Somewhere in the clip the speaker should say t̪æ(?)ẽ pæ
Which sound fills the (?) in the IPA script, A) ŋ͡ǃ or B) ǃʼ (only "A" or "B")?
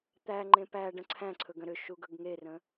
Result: A